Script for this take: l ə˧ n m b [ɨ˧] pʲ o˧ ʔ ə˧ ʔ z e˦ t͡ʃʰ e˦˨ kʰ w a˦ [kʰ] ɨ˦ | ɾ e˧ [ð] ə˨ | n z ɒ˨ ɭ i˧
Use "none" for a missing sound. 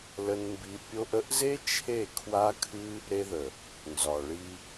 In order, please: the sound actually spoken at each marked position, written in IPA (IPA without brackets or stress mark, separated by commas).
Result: i˧, kʰ, ð